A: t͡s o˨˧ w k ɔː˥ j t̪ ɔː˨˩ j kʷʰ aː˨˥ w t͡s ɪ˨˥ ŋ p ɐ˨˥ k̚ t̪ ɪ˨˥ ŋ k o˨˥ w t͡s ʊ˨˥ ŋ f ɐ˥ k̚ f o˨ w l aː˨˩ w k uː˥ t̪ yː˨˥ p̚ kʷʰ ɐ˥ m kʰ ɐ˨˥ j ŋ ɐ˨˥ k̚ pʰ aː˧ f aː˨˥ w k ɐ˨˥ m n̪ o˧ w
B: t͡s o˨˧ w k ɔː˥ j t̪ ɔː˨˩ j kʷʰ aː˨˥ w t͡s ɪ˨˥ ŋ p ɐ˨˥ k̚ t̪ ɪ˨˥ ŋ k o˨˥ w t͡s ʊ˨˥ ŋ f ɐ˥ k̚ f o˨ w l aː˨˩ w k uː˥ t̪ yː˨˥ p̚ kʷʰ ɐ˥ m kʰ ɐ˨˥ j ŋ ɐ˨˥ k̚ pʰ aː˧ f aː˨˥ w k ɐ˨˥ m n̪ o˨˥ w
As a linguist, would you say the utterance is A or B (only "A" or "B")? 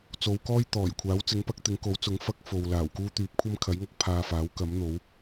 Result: B